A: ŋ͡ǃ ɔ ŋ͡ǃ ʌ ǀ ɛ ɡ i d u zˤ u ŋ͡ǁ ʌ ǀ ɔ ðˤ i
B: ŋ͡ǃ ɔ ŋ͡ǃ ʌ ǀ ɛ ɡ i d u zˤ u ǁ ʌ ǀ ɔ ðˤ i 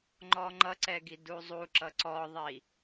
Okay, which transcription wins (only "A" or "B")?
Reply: B